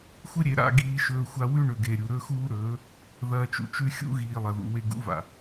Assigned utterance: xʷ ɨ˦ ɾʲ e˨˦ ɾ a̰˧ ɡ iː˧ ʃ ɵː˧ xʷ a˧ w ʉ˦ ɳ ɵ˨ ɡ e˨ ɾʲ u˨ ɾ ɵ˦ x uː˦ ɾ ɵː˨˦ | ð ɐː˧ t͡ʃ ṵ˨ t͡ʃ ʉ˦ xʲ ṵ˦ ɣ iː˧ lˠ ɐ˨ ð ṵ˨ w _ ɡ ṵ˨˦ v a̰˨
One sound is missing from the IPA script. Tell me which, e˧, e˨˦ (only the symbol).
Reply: e˧